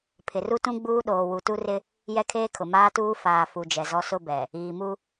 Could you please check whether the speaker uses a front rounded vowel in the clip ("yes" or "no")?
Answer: no